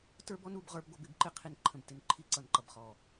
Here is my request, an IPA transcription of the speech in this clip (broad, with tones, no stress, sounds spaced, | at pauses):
t ə˞˦ b ɔ˦ n u˨˦ b ʁ ə˞˦ b ɡʷ ʌ˦ b ɪ˦˨ b ǃ ɪ˦ qʰ i˨ n ǃʰ ə̃˨ b t ɪ˨ n ǃʰ i˦˨ ǀ ʌ˨ n ǃ ʌ˨ b χ ɔ˨